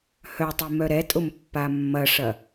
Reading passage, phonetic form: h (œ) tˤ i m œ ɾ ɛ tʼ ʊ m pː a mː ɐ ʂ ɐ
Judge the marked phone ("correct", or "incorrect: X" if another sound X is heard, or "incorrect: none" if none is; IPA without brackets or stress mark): correct